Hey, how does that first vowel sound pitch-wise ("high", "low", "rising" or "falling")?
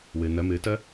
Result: low